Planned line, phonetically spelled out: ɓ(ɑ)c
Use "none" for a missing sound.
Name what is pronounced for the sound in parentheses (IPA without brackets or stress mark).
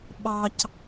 ɑ